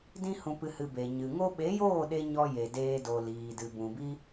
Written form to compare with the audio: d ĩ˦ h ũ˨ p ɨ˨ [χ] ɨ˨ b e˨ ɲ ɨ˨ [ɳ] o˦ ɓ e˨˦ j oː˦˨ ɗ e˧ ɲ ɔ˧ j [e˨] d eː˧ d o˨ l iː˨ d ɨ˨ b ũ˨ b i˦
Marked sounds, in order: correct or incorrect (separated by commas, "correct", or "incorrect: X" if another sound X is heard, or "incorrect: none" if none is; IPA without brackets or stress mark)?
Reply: incorrect: h, incorrect: ŋ, correct